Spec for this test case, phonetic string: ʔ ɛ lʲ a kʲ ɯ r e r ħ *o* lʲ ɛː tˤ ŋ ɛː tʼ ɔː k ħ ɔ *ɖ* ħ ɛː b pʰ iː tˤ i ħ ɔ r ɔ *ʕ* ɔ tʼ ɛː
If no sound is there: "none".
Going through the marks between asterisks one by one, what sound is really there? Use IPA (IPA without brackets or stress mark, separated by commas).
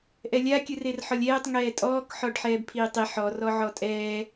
ɔ, ɖ, ʕ